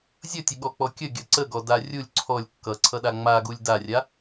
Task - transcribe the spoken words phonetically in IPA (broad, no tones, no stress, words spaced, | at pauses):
zʲʌtʲəɠɔk͡pɔ kʲəɡʲʌ ǀəɡɔda rʲulʲ ǀʰɔlʲ kːʌǀʰʌɗa ŋ͡maɡulʲ darʲa